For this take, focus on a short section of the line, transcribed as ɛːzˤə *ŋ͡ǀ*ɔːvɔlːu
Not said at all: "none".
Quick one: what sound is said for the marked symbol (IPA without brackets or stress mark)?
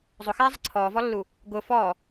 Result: ǀʰ